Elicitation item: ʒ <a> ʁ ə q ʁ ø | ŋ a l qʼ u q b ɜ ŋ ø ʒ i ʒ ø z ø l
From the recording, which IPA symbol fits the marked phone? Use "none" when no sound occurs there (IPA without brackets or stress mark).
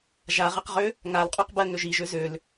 a